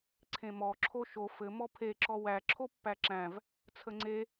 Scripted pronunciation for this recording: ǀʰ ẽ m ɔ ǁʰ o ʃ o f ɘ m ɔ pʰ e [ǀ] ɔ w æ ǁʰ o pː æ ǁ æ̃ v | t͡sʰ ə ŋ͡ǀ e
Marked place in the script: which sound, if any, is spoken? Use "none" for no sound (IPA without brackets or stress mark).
ǁ